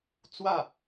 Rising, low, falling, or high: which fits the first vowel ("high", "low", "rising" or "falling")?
falling